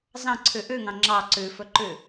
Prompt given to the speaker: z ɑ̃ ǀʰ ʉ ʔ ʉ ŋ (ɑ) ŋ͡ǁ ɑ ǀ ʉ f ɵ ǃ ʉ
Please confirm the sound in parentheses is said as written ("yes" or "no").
no